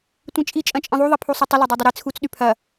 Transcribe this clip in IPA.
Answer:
tʷ ĩ t͡ʃʼ i t͡ʃʼ ɐ̃ t͡ʃʼ ĩ ðˤ u ðˤ i pʰ u sˤ u tˤ ʊ l ɐ dˤ u dˤ ʊ ɾ i t͡sʰ u t͡s ɗ y pʰ ɐ

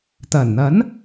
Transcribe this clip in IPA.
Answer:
t̪ ɐ˨˩ n n̪ ɐ˨˥ n

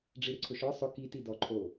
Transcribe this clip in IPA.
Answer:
ɖ͡ʐ i ɾ ɪ ǀʰ ʊ ʃ ɔ sˤ ʊ k i t i d ɔ ǃʰ o

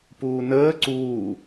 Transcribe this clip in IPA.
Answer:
p uː n əː ǀ uː

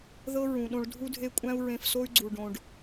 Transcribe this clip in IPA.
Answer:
ð ɤ˦ ɹ ũ˨ ɗ õ˧ ɭ dʱ u˦ dʱ e˦ kʷʼ æ̃˦ u̯ ɹ ẽ˧ f s o˦ y̯ ɡ͡ǀ u˨ ɖ õ˨ ɖ

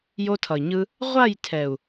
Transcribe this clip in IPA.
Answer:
j o˧ tʰ ʌ˨ i̯ ɲ ɯ˧ | ʁʷ a˦˨ j tʰ ɛ˨ u̯

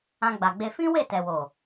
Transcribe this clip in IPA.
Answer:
ã˧ ɡ͡b a˨ ɡ͡b e˧ f ĩ˦ w e˦˨ t ɛ˨ w o˨

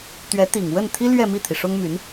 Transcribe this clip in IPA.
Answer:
t̪ ɥ ɛ˧˥ t̪ i˨˩ ŋ w ə˥˩ n t̪ʰ i˥ l ɥ ɛ˥˧ m i˥˩ t̪ʰ i˩ ʂ ʊ˥ ŋ m y˧˥ n

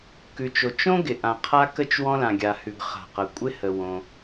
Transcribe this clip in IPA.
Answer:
k ʉ˩ t͡ʃ o˩ t͡ʃ õ˥ ɡ ɪ˩ ʔ ã˩ qʰ a˥ k ə˥ t͡ʃ w ɔ̃˥ l ã˩ ɡʲ a˩ h ʉ˩ ɡ χ a̤˩ q ɐ˩ kʷʼ ɪ˥ h ə˩ w õ˩

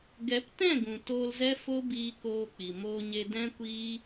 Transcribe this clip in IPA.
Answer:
ɡ ɛ˨˦ p t ɛ̃˦˨ ɡ ũ˨ t oː˧ l z ɛ˦ f o˦ b iː˧ k oː˧ k͡p i˨ m oː˧ ɲ e˧ d ɛ̃˦ kʷ iː˦

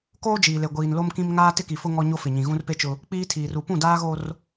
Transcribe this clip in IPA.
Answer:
k oː˦ d͡ʒ iː˨ l e˨ ɡʷ iː˨ n l o˦ m k ĩ˦ m ŋ aː˦ t ɪ˦ k i˨ f ʊ˦ ŋ ɔ˦ ɲ o˦ f ɪ˨ ɲ ĩ˨ ɣ ũ˦ r p e˦ t͡ʃ ʊ˦ | k͡p iː˦ tʰ iː˨ r u˨ p ũ˦˨ d aː˦ ɣ o˦ r

